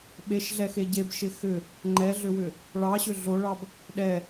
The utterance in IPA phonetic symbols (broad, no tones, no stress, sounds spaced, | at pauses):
ɓ e ʃ ɮ ɛ x e ɟ e b ʃ ɪ x ʏ | ŋ͡ǃ ɛ ɮ ʏ w ʏ | ɭ ɑ ɕ ʏ ɮ o ɭ ɑ b | ɗ ɛ